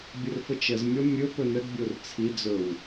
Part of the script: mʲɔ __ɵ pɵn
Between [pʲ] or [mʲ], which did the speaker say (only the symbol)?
mʲ